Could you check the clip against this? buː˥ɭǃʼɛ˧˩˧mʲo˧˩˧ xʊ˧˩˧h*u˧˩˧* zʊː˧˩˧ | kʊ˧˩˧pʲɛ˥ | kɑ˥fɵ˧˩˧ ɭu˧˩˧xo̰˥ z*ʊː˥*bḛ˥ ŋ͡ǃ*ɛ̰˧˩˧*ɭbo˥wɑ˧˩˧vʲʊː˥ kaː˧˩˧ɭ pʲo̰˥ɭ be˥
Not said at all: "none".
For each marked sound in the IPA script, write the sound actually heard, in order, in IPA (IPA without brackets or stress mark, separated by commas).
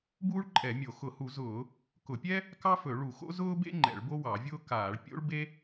u˧˩˧, ʊː˥, ɛ̰˧˩˧